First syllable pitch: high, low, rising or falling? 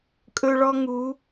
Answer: high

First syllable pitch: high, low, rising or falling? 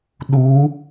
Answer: rising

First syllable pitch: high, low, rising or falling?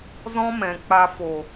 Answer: high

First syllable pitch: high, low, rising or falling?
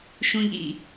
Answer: low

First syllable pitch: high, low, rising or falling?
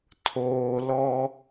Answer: low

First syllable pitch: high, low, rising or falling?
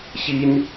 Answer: high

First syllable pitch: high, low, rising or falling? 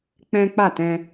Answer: high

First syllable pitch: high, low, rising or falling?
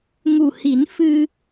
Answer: low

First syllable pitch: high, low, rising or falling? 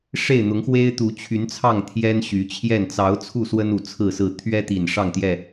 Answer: falling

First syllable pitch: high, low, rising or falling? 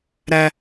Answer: low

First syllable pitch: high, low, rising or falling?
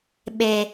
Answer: low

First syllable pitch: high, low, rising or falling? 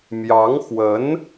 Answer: rising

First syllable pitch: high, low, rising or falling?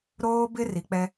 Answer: high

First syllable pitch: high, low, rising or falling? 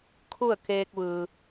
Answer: falling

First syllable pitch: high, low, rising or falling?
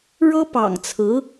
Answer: high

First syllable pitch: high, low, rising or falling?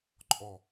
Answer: low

